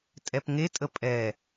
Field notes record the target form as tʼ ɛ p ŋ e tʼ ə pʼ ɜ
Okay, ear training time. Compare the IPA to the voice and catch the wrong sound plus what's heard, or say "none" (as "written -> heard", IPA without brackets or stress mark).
ɜ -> ɛ